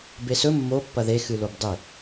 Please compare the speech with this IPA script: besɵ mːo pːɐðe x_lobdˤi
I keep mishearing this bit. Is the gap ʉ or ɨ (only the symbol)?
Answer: ɨ